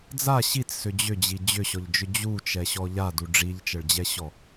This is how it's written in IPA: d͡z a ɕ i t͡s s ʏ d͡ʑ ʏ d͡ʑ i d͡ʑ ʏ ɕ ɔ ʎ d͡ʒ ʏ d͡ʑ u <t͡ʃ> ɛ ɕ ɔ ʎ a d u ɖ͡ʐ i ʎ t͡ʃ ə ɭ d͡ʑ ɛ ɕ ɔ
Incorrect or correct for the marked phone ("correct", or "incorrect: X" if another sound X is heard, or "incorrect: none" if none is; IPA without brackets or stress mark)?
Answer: correct